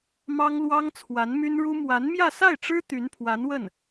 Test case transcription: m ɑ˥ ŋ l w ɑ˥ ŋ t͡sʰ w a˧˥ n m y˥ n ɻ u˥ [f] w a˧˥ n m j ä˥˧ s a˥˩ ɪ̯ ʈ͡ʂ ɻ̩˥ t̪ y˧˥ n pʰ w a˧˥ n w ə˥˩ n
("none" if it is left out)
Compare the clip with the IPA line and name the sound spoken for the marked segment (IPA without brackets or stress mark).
m